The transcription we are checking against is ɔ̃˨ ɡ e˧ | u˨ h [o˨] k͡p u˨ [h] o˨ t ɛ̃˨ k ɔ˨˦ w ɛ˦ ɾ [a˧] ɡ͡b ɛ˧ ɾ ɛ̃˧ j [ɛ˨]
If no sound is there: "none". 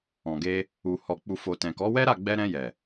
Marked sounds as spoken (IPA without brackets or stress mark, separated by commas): ɔ˨, f, a˦˨, ɛ˨